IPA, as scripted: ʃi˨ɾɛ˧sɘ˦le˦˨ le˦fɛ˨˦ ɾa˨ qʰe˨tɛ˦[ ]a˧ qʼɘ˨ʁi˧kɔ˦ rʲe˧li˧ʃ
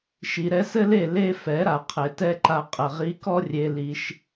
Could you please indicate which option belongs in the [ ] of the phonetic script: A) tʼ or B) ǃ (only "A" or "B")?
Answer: B